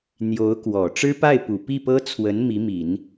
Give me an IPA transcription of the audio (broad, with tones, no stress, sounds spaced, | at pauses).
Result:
n̪ j o˧˥ ʊ̯ k w ɔ˨˩ ʈ͡ʂ ɻ̩˥ p a˥˩ ɪ̯ p u˨˩ p i˥˩ p ɤ˥ t͡sʰ w ə˧˥ n m i˧˥ m i˨˩˦ n